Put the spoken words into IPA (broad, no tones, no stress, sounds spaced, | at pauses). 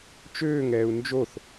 t͡ʃ øː ŋ ɛː u̯ n d͡ʒ o θ